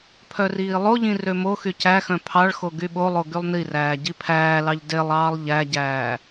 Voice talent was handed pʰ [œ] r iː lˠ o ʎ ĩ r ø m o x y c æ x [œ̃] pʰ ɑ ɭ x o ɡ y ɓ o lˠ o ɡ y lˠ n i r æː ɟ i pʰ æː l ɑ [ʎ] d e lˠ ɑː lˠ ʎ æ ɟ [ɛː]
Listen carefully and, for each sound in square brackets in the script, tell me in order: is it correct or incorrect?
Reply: correct, correct, correct, incorrect: æː

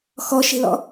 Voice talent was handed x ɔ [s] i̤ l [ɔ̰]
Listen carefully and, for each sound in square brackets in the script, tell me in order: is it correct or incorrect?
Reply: incorrect: ʃ, correct

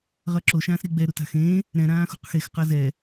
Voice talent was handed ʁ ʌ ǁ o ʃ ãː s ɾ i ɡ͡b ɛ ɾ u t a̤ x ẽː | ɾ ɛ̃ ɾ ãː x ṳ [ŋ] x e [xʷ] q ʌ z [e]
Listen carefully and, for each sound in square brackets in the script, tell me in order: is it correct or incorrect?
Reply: incorrect: q, incorrect: x, incorrect: ɛ

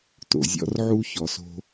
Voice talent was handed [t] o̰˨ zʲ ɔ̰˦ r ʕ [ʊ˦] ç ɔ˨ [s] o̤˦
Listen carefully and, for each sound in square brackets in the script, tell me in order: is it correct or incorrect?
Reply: correct, incorrect: u˦, correct

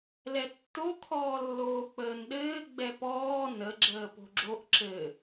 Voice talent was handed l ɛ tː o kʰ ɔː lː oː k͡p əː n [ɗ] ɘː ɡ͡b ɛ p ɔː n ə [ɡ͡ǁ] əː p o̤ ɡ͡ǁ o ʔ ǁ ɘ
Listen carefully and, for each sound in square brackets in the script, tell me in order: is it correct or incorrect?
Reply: correct, correct

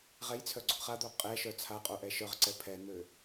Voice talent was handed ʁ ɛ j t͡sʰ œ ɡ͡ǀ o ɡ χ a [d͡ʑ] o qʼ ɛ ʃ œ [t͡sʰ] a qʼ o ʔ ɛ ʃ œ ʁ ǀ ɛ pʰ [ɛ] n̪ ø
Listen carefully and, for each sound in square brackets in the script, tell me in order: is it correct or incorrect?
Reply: incorrect: d̪, correct, correct

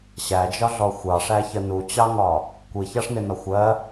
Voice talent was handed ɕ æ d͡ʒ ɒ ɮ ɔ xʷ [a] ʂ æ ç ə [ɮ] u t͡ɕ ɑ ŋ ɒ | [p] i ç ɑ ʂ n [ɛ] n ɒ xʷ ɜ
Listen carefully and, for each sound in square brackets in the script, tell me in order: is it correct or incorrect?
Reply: incorrect: ɑ, incorrect: n, incorrect: kʷ, incorrect: ɪ

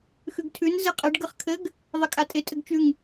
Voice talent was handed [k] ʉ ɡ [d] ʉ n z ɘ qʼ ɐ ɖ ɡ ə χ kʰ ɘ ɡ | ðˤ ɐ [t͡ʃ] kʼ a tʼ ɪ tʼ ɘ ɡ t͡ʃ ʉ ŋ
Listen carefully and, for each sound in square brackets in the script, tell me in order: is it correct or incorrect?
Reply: incorrect: x, incorrect: tʰ, incorrect: none

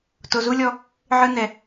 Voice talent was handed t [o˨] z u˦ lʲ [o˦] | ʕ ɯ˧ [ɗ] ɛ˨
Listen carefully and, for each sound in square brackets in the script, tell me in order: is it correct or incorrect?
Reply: correct, incorrect: ɔ˦, incorrect: n

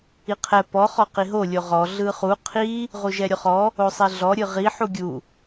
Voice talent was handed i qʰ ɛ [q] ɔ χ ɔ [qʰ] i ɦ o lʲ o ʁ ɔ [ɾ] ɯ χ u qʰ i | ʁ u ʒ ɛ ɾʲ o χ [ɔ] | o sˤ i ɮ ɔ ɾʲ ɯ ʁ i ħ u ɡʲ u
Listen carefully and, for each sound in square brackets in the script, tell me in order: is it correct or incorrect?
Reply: incorrect: p, incorrect: q, incorrect: ɮ, correct

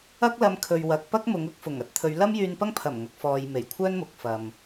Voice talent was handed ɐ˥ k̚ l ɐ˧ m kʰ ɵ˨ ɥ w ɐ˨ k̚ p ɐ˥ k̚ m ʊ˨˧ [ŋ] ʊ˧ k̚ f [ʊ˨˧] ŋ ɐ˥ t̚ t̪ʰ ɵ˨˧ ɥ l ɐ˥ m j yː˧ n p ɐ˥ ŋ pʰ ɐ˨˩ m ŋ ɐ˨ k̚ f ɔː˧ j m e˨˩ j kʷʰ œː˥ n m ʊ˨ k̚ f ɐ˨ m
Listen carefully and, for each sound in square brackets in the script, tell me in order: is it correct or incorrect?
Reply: correct, incorrect: ʊ˨˩

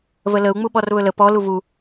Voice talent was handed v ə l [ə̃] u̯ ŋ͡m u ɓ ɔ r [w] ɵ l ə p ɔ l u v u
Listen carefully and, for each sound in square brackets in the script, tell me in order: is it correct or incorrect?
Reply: incorrect: ə, incorrect: β

